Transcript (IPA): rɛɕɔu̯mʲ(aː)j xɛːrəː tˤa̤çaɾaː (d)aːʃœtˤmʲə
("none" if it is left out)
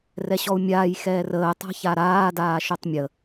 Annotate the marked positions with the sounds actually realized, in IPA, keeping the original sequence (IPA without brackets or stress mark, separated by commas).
aː, d